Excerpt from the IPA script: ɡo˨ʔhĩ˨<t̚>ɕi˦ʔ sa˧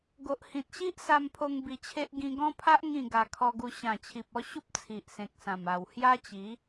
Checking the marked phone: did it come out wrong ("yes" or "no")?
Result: no